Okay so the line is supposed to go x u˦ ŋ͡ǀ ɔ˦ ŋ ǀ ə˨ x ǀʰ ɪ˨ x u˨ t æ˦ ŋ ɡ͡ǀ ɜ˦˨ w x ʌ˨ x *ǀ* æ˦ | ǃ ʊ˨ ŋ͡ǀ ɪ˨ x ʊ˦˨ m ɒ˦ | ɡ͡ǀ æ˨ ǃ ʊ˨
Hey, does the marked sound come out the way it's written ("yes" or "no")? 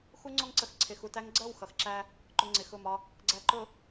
no